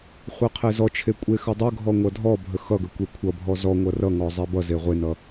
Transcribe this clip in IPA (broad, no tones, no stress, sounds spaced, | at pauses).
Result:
χʷ e qʰ e z ɔ t͡ʃʰ e kʷʼ e x ə dˤ ə ɡʱ ɔ ŋʷ ʌ dʱ ɔ bʱ ə x ʌ ɡ ə kʷ e kʷʰ ʌ bʱ ɔ z ɔ ŋʷ ʌ r ʌ ŋ ɔ zˤ e b ʌ z e ʁʷ e n ʌ